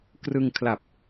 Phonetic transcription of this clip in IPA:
k r ɯ˧ ŋ kʰ l a˨˩ p̚

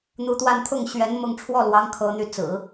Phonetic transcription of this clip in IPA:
n̪ u˧˥ t̪ w a˥˧ n t̪ʰ ʊ˥˩ ŋ ɕ ɥ ɛ˧˥ n m ʊ˥˧ ŋ ʈ͡ʂʰ w ɔ˥˩ l w ɑ˧˥ ŋ kʰ ɤ˧˥ n̪ y˥˩ t͡s ɹ̩˨˩˦

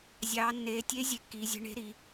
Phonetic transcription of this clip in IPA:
zʲ ɑː˩˧ nː eː˩˧ tʲ e˧˥ zʲ e˧˥ kː iː˩˧ zʲ e̤˧˥ ɳ e̤˧˥ ɾ i˩˧

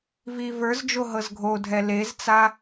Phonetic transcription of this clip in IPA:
v i v ə˞ z d͡ʒ o ɦ ɤ z ɡʱ o dʱ ɛ l e z t͡s a

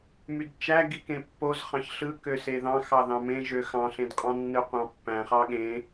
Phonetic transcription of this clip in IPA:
m y d t͡ʃ æ ɡ i k ẽ pː o z χ ɑ̃ ç ɬ ɯ k ø s e ð ɑ̃ x ɑ ð ɑ̃ m ẽ ʒ ø x ɑ̃ ɬ ẽ d qʼ ɑ̃ nː ɯ qʷ ɑ̃ pː æ̃ χ ɑ ɠ ẽ

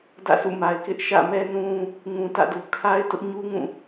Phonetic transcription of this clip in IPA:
d ä̰˦˨ sʰ ṵ˦˨ m a˨ ɪ̯ k ɪ˦ ʔ ʃ ä̰˦˨ m ɛ˦ n ũ˦ | ŋ ũ˨ t ä̰˦˨ d u˨ kʰ a˦ ɪ̯ t ʊ˦ ʔ ɲ u˦ ŋ ũ˦˨

